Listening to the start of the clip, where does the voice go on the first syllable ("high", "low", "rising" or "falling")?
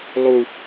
high